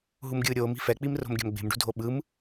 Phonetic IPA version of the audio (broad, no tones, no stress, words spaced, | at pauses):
ɦumɡʲɯːɾʲoːmi̤ fɛk͡pimro̤m ɡʲa̤mɡ͡be̤mɖṳdʱo ɓɯm